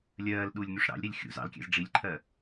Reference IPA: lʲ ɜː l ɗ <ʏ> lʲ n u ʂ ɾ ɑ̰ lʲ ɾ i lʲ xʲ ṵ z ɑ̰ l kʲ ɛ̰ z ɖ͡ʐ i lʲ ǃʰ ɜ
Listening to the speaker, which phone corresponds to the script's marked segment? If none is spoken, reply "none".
u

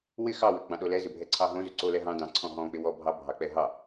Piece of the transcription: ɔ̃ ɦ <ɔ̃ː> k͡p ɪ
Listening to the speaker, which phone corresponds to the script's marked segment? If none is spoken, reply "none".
ɔ̃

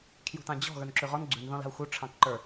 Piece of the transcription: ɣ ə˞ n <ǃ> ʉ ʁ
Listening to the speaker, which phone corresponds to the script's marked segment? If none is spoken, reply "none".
ǁ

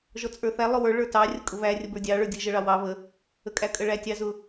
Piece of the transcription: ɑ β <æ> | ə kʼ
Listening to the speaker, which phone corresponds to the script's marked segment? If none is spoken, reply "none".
ə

